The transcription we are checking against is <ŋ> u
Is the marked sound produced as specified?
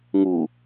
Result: yes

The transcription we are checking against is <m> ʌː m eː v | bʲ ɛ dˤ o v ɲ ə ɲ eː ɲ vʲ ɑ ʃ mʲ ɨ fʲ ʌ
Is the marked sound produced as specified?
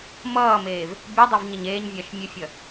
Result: yes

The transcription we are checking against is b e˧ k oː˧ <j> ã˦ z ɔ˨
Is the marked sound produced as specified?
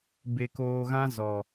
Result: no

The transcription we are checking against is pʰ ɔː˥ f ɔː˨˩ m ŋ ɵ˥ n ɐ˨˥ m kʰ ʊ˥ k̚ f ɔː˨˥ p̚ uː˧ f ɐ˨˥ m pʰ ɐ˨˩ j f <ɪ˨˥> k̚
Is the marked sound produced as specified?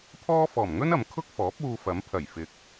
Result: yes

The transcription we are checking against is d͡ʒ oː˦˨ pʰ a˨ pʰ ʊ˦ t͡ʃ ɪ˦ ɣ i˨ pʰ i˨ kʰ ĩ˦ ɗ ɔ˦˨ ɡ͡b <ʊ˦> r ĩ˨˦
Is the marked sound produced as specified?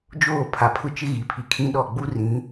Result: no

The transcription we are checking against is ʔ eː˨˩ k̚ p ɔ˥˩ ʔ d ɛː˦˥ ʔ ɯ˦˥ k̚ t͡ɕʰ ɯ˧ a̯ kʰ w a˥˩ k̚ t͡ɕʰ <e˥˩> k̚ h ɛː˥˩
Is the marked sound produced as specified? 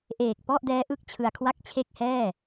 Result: yes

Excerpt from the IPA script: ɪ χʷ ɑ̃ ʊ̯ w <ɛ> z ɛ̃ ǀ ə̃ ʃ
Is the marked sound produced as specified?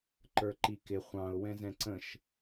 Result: no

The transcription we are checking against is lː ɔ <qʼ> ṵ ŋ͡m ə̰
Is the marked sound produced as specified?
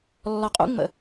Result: yes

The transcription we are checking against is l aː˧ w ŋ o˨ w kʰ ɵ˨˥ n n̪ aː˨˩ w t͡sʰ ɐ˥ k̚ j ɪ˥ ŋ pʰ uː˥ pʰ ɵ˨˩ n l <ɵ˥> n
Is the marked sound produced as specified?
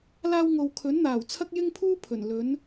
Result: no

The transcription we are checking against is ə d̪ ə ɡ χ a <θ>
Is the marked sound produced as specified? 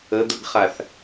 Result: yes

